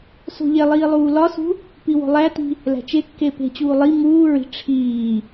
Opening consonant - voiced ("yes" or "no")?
no